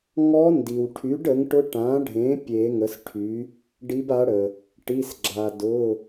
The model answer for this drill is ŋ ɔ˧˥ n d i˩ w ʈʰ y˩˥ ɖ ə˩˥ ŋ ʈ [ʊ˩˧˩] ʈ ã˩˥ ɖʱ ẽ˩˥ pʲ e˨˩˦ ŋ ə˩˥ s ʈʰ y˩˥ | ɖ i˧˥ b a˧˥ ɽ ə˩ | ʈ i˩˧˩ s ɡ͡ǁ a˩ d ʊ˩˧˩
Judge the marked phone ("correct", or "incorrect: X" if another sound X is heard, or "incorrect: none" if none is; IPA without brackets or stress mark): incorrect: ʊ˧˥